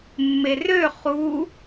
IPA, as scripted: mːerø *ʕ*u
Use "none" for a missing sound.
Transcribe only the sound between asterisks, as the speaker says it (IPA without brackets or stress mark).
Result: χ